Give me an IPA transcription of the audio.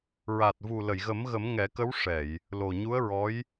ɹa˨˩t̚vu˨˩ lə˨˩˨jɣə˨˩˦mɣə˨˩˦m ŋɛ˨˩˦kə˧˥wʂɛ˨˩˨j | lo˨˩ɲu˧˥ə̯ɹɔ˧˥j

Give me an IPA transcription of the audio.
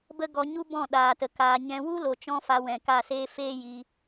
bə˦ɡɔ˧ ɲu˦bɔ̃˦˨ɗaː˨tə˨ kaː˨ɲɛ̃˧ wu˦lo˨t͡ʃɔ̃˧ fa˧wɛ̃˨ka˦˨seː˦ feː˦ji˧

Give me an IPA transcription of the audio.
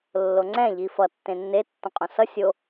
lːoŋ͡ǀɛ̃ ʎifʌ tːẽnːe tːõqʼõsʌ sʲo

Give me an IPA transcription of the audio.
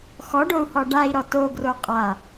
xɔɖou̯hɔ ɖai̯ɾɔ toɡro qʼa

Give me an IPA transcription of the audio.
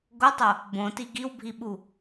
ɡotˤo | bõti ɡiwbʱiɓu

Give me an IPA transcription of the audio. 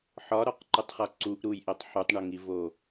ħɒɾɒqǃutˤχɒ ǀuʔɾujʔetˤ ħutˤɳoŋivo

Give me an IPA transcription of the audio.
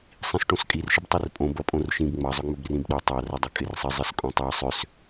sˤĩsʈõskʼir ʃɪbtˤirpʼõb ɐpʼõrʃĩb ŋ͡mɐ zˤʏŋ͡mʏbrĩbɗo tˤar ədˤɪkʼɪrsˤɪ zˤɪskʼõtˤa sˤʏs

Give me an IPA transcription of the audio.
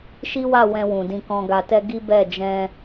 ʃi˦wa˦˨wɛ̃˧wũ˨ dĩ˧kɔ̃˧ɡa˧tɛ˦ ɡi˦bɛ˦˨ d͡ʒɛ̃˧

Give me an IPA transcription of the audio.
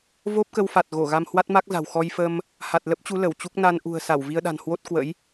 vo˦˥p̚kə˧wfa˨˩t̚ɣo˧˩ ɣa˧mhwa˦˥t̚ma˦˥k̚za̤˨˩w xɔ˧jfə˧m | ha˨˩t̚lə˦˥p̚t͡ɕu˨˦ lə˧˩wt͡ɕu˦˥k̚ na˧n ʔṳ˨˩ə̯sa˧˩w vi˧ə̯ɗa̤˨˩nhwo˦˥t̚ kwə̰˧˥j

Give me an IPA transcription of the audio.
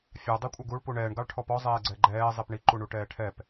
fʲɑ dˤikʷʼɛɡuɭ puɳɛːɳ ɡɑɭʈʰɔpɔ zˤɛːɡ͡ǀɛɡ͡ǃɛː zˤipɳi ǃuɳuʈɛːʈʰɛp

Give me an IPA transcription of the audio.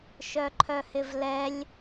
ʃœǃʰœhɪvlɛlʲ

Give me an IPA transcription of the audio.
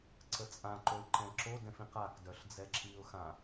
ǀət͡sʼãǃoɪ̯ ǃɛ̃ǁodɛ̃f ĩqakdœɬ d͡zɛǁiʊ̯xã

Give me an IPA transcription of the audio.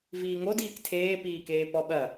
viːŋodiːk tʰeːpiːkeː pɔɓɐ

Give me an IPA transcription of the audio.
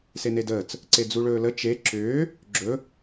senedəːt͡s | ǀed͡zuɭɵːlə t͡ʃe ǁʏː | ɡ͡ǁɵ

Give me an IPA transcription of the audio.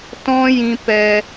tɔ̃˦jĩ˧ pɛ˧

